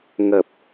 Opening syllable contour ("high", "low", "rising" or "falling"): low